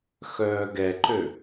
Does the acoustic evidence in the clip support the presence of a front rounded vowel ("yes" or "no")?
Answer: yes